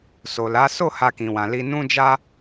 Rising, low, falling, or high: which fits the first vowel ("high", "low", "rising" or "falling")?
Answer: low